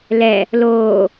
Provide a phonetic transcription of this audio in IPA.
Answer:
lɛ | loː

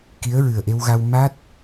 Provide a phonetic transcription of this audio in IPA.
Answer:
ki˧˥ə̯ɹɨ˨˩ə̯ʔe˧wɣa˧w ma˦˥t̚

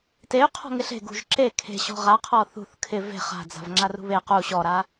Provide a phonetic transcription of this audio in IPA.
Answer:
tey̯ qʰɔ̤ŋɪɬe̤ ɡṳʒǁe kʰe̤ɕɔ̤ ʁaqʰɔ θṳθ kʰɪ ve̤ χa̤d͡za̤v ŋ͡ǁarṳβe qu ɕɔɾa

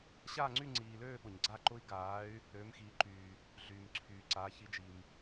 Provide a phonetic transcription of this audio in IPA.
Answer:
ɕaː˦˨ŋ͡ǀy˦˨ŋ͡ǀiː˨løː˦˨ ɓʊ˨ɲɡ͡ǀa˦˨ ǃʊ˦˥i̯ ɡaː˨˦y̯ | ɾøː˨˦mxiː˨˦ǃyː˨ | ɮyː˨mǀʰyː˨ ǀa˨˦ çi˨˦d͡ʒi˨m

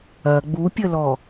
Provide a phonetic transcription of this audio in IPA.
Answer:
ɐ ɡ͡bupʲəlɔ

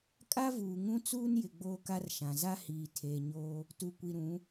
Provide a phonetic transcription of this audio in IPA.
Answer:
kʼa˦vuː˨ŋũ˦ t͡suː˦njɪ˨ ɡ͡boː˦ka˦rʃã˨ za˦hiː˨ tʰeː˨ɲoː˦ | tu˨kʷi˨ɾũ˨˦

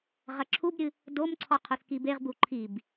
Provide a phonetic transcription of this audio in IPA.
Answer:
ʁɐǁʰubɾʲɨ | domǀʰɔ qʰoθkibeʁ buǃʰib

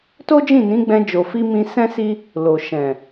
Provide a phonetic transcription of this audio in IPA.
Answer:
to˦d͡ʒĩ˦˨ nĩ˨˦ɡ͡bɛ̃˧ d͡ʒo˨fi˧ mĩ˧sɛ̃˦si˦ | lo˨ʃɛ̃˨

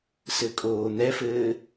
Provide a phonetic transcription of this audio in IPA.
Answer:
sɘkʼoːn̪ɛfɘː

